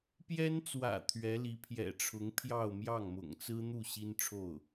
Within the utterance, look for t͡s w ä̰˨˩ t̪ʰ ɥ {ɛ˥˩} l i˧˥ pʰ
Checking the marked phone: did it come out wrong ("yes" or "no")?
yes